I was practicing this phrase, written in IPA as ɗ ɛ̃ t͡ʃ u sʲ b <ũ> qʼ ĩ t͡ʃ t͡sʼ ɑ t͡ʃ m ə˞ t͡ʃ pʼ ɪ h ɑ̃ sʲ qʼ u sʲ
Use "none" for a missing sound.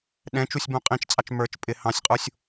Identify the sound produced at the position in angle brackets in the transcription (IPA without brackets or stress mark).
ũ